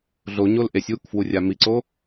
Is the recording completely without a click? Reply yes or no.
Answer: no